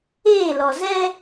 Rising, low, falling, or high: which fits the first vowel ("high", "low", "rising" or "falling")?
falling